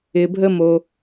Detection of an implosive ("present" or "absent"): absent